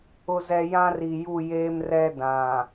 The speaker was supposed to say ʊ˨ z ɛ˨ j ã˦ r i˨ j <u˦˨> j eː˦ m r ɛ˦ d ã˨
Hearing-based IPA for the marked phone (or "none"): u˦˨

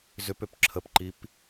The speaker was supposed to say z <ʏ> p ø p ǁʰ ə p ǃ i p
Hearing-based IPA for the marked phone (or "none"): ʏ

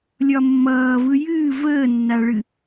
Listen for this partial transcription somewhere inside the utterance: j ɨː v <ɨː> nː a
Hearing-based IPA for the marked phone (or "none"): əː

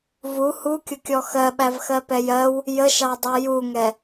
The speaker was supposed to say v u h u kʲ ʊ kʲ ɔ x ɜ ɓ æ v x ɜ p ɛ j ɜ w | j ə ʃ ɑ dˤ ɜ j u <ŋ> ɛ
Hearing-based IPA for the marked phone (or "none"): ŋ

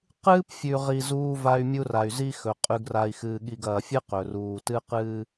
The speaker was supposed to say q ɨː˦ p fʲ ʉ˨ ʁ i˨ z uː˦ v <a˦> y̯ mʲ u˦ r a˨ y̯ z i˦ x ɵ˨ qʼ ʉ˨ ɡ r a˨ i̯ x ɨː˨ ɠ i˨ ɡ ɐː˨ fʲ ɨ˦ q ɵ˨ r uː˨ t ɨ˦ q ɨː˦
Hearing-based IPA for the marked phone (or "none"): a˦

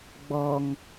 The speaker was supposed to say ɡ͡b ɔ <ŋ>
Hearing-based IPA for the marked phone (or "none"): ŋ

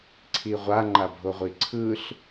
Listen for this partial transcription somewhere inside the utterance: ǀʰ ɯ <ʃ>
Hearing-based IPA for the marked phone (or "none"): ɬ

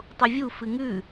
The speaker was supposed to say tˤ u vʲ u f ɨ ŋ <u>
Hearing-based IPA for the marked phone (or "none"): ʉ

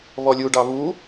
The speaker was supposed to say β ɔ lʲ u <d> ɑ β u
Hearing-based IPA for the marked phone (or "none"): ɖ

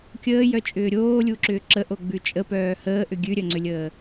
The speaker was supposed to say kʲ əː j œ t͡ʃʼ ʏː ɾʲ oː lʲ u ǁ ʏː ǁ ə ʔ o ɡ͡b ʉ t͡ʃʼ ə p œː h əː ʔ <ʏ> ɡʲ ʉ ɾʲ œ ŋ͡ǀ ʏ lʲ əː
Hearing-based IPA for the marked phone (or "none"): ʏ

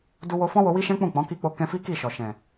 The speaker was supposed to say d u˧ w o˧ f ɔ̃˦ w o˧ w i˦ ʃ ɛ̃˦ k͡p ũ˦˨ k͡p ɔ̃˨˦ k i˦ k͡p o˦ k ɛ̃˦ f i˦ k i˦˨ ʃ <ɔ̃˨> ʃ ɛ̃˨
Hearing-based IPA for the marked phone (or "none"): ɔ˨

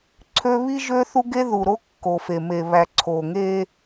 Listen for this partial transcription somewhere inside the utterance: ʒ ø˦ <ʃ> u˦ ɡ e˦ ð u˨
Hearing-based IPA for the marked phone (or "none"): θ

